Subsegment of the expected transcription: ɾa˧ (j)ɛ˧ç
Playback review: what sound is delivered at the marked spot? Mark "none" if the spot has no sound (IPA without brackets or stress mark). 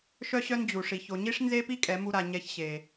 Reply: ɲ